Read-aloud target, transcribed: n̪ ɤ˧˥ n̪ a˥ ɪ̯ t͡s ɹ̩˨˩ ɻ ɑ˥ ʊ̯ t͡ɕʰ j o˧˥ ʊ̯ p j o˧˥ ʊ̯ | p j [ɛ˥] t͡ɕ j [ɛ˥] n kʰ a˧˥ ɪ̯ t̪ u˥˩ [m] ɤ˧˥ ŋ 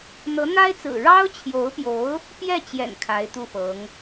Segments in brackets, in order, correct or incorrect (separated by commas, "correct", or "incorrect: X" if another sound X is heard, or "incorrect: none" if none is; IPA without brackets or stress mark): incorrect: ɛ˥˩, incorrect: ɛ̰˨˩, incorrect: f